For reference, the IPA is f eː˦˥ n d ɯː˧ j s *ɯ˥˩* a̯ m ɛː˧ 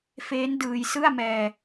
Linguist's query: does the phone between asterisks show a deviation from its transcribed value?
no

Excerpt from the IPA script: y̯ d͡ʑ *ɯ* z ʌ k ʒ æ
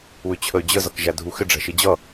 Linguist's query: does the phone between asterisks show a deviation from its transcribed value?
yes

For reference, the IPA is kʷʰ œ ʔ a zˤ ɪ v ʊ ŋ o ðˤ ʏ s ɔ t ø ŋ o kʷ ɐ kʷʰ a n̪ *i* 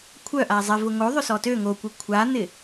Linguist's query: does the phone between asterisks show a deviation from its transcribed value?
yes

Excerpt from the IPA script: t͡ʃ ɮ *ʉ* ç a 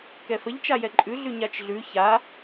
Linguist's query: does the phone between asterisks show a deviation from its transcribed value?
no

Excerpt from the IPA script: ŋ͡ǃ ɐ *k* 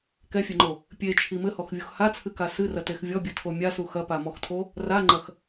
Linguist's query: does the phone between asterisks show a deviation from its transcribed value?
yes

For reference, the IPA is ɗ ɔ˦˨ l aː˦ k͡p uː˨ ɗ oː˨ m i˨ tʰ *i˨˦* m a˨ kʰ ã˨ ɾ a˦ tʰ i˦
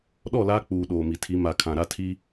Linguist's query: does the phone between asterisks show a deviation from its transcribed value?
no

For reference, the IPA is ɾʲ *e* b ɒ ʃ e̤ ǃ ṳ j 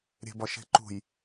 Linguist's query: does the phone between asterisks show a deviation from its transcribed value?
yes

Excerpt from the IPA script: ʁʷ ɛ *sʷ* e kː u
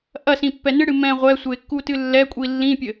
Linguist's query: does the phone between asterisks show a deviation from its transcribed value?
no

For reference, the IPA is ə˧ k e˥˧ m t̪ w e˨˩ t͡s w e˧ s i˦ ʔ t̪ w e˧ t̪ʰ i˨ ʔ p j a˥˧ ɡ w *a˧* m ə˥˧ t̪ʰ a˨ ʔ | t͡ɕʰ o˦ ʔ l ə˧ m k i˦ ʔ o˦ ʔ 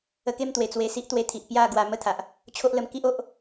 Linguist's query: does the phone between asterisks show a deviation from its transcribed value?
no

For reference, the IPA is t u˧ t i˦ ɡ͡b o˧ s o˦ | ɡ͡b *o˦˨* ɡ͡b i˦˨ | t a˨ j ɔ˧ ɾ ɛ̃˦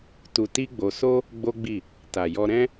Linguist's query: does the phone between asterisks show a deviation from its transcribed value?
yes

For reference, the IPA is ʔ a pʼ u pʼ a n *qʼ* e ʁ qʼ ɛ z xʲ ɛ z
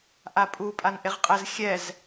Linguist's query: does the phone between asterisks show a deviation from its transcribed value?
yes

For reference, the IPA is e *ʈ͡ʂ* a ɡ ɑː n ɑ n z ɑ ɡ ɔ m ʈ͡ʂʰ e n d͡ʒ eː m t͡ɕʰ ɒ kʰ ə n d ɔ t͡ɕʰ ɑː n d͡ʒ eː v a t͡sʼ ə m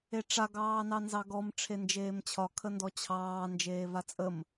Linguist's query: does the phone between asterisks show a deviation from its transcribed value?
no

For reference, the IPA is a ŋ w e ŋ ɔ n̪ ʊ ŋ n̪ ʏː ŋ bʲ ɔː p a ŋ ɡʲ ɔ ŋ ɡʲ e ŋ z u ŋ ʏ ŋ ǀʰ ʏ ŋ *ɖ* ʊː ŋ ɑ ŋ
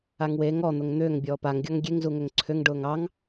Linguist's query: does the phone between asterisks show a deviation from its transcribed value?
no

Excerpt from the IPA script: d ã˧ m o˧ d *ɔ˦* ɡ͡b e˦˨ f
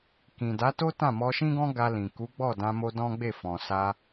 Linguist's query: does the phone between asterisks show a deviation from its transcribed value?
yes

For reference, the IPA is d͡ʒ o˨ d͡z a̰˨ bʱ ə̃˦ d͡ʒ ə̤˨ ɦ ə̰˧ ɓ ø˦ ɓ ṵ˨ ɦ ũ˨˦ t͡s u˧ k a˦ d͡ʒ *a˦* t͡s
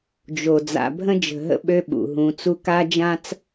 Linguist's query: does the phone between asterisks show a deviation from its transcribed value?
yes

